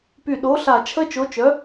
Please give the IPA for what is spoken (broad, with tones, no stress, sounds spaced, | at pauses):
p y˧˩ ɗ o˨˥ ɬ a˧˩ t͡ʃʰ ə˦˥ t͡ʃ o˨˥ t͡ʃ œ˨˥